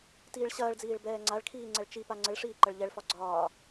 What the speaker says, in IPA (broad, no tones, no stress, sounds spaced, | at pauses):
t iː ɭ ɕ ɐː ɭ d͡z iː ɭ b ɛː ŋ͡ǀ a ɭ kʰ iː ŋ͡ǀ ɛ ɭ t͡ʃ i p a ŋ͡ǀ ə ɭ ʂ iː ǃ ɐ ɭ ʎ ɛ ɭ f ɒ ɡ͡ǀ ɒː